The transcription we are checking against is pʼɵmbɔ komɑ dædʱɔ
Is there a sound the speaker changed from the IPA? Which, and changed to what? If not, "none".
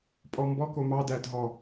ɵ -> ɔ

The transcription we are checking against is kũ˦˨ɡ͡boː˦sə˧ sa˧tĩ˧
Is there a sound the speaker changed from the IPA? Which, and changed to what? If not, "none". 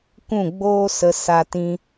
none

